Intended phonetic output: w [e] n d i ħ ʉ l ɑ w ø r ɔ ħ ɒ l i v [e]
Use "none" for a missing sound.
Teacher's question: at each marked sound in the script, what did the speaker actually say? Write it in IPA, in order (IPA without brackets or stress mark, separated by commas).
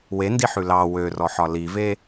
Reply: e, e